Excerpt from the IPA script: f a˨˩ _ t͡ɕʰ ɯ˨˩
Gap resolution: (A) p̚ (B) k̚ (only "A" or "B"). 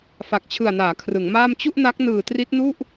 B